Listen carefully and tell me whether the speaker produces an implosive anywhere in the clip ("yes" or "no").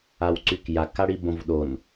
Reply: yes